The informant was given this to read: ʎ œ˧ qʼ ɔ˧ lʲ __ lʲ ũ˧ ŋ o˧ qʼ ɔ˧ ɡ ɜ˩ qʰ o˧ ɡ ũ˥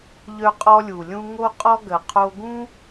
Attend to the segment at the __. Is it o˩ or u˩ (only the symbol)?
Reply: u˩